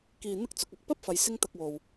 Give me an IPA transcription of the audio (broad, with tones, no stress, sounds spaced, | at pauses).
k iː˧ n̪ ɪ˥ k̚ t͡s ʊ˨˥ k̚ ɐ˨ k̚ p ɐ˥ p̚ f ɐ˨˧ j s ɪ˥ ŋ t̪ ɐ˧ k̚ w o˨ w